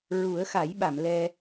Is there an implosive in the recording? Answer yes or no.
yes